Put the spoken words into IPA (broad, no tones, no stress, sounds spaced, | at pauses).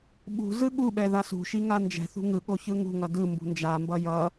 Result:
ɓ ṳ z ɯ ɠ u ɓ ɛ ð a s ṳ ʃ i ŋ a n d͡ʒ ɛ̤ θ ṳ ŋ ɯ ɠ o ç ɯ ŋ ṳ ŋ ʌ d ɯ m b ṳ n d͡ʒ a m b ʌ j ʌ